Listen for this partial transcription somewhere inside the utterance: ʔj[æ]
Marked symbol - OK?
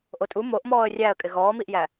yes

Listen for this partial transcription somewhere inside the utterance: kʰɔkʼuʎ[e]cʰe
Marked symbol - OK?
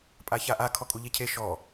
yes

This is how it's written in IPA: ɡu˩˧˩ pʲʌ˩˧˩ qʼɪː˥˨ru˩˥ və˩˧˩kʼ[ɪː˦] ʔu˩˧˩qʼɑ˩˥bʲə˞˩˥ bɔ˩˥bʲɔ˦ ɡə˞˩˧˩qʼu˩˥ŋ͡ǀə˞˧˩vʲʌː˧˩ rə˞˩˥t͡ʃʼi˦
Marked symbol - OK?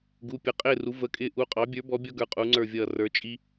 yes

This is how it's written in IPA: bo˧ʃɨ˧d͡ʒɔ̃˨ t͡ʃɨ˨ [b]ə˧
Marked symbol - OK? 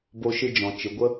no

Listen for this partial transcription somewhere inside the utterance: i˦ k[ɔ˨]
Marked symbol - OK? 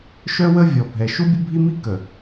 no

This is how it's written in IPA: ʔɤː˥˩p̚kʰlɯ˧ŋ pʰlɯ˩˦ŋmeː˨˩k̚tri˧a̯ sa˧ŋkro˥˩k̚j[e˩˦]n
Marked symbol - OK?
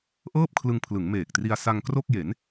yes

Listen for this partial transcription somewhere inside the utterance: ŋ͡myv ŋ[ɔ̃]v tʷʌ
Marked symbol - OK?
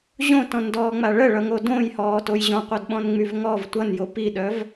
no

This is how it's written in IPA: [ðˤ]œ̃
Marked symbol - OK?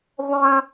yes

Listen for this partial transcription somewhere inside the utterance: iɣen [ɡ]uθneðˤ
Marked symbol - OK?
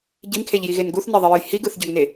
yes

